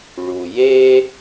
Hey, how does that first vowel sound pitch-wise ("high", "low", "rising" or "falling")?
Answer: low